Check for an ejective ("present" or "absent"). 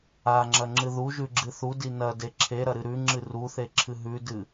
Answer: absent